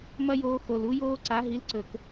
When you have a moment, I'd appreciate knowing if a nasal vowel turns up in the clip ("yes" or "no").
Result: no